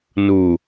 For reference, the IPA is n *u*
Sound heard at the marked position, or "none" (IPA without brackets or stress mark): u